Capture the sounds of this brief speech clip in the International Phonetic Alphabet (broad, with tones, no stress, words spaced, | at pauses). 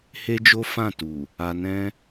he˦d͡ʒo˦ fã˦˨tu˨ | a˧nɛ̃˦